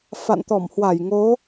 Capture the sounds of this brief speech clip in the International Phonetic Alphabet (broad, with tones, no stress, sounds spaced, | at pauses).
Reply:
f a̰˧˨ n t̪ ɔ˧˩ m h w a˧˩ j ŋ o˨˦